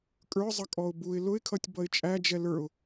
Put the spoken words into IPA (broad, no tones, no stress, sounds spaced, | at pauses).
kʼ ə˞ zˤ ʌ kʼ ɔ ʊ̯ b u ɪ̯ l ʊ ɪ̯ kʰ ʌ tʲ b ʌ ɪ̯ t͡ʃʼ æ d͡ʒ ɛ l ə˞ ʊ̯